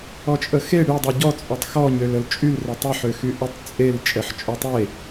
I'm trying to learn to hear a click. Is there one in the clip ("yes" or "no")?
no